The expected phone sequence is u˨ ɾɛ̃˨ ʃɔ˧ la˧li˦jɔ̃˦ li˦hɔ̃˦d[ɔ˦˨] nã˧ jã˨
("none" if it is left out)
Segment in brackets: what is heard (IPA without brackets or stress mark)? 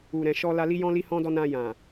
ɔ˦